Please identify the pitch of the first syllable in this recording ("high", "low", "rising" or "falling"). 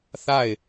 falling